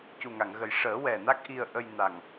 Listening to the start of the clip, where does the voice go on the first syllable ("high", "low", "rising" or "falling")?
low